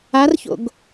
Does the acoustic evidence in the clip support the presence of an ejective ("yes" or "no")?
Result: no